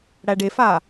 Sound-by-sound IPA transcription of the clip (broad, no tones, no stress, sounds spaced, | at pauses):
ɽ æ ɖ e f a